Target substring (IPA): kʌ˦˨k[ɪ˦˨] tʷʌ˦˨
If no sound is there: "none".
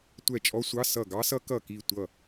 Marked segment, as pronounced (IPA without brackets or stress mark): i˦˨